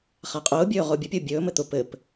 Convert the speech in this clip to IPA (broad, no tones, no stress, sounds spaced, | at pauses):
χ a qʼ ʊː bʲ ɵː ʁ ʊː bʲ ʊ pʲ ʊː bʲ ɵː m ɘ t̪ ʊ p ɘ p